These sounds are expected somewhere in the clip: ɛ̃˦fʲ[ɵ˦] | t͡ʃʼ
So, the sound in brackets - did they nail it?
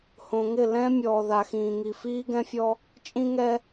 no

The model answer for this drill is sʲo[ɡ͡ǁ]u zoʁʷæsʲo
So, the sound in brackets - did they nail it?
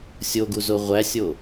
no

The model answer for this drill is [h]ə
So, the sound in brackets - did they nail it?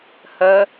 yes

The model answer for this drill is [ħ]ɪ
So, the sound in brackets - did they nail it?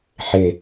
yes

